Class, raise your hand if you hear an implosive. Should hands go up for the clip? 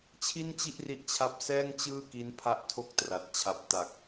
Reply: no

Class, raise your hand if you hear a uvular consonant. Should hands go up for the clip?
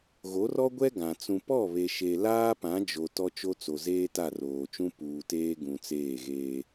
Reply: no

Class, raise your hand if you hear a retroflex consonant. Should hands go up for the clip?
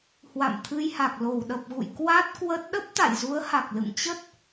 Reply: no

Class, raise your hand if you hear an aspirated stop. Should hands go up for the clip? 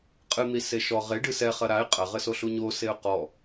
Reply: no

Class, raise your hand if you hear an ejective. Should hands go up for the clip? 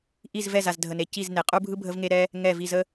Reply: yes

